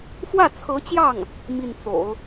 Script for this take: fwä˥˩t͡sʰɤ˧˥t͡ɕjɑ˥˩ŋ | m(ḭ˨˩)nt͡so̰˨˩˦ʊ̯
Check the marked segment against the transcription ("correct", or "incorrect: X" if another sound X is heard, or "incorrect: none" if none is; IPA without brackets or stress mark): incorrect: i˥˩